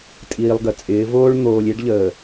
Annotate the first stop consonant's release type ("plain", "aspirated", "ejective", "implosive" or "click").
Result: ejective